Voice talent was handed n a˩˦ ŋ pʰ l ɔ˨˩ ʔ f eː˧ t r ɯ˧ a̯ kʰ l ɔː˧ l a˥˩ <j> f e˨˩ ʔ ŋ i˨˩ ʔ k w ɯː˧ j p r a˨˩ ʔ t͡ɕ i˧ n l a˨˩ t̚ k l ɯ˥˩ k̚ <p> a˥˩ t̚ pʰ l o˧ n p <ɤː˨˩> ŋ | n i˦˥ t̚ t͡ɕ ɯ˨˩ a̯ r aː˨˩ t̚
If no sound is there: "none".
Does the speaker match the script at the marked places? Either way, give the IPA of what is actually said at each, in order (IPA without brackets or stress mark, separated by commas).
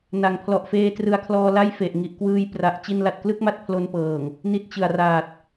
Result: j, m, ɤː˨˩